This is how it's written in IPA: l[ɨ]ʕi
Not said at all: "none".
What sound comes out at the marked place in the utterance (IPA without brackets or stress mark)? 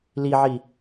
i